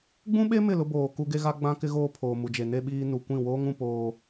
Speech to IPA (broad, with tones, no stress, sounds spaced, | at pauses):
ɡ͡b ũ˦ ɓ e˦ m ɪ˦˨ l ʊ˦ b oː˨ k u˦ ɡ e˦ ɣ a˦ ɡ͡b ã˦ k ɪ˦ ɣ oː˦ pʰ oː˨ m u˨ d͡ʒ e˨ n e˦ ɓ iː˦ n u˨ kʷ ĩ˦˨ w oː˦ ŋ ũ˨ p oː˦